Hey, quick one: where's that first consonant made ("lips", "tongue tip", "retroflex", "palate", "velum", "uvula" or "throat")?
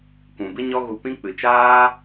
velum